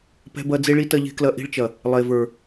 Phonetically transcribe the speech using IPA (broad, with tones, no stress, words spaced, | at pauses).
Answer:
pɛ̤˧bɐ˧ d͡ze˦ɭi˦tɐ˦ ʎe̤˧klɐ˧ ʔi̤˧ɭt͡ʃɐ˨ | lˠe˨və˞˨